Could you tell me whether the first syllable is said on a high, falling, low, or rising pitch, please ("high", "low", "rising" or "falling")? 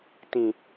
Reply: low